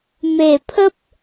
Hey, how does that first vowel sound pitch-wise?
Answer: low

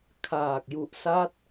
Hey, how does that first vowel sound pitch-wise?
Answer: low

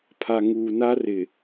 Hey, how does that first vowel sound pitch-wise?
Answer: low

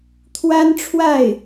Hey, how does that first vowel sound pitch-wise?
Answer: high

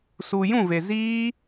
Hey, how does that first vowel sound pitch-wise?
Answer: low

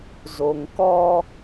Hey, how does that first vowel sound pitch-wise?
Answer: low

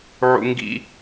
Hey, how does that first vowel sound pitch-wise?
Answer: high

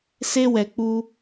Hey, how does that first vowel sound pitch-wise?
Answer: high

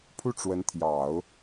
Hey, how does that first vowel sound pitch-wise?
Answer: falling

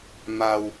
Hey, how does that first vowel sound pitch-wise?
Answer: low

